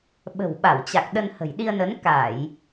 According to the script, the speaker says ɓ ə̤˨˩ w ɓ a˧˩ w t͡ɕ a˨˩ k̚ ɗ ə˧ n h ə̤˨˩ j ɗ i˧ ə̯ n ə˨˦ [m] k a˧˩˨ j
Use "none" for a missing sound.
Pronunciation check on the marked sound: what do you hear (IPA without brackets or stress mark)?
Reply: n